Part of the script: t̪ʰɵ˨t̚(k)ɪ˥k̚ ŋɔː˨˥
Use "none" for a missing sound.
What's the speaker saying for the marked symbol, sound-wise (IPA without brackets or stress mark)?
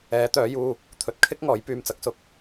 kʰ